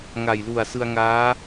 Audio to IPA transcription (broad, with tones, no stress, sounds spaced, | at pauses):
ŋ a˨˩ j l u˨˩ a̯ s ɯ˧ a̯ ŋ aː˦˥